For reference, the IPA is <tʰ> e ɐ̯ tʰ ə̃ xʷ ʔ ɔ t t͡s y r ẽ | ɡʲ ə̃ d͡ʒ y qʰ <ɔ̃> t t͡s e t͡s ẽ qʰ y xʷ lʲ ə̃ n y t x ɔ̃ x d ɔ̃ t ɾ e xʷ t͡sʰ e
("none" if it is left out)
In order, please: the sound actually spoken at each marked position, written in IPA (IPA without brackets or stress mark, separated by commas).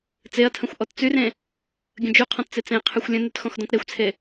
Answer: t͡s, ɔ̃